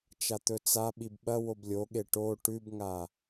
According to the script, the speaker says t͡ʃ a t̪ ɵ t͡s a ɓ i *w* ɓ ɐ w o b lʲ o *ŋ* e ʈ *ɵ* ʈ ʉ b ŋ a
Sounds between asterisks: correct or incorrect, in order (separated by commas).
incorrect, incorrect, incorrect